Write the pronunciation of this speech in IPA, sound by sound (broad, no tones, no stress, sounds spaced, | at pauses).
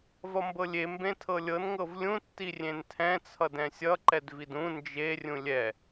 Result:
v ʌ m b ɤ lʲ e m b ẽ tʰ ɤ lʲ ɤ n ŋ ɤ v lʲ ũ tː i rʲ ẽ n tʰ ɛ̃ t͡sʰ ʌ d ɛ̃ sʲ ʌ ǃ ɛ d v i d ũ n d͡ʒ e rʲ ũ lʲ ɛ